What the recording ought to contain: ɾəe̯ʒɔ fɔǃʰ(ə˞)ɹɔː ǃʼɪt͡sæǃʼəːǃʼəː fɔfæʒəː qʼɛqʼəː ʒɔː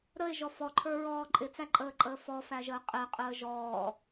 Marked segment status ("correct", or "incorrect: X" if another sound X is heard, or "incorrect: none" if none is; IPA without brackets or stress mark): correct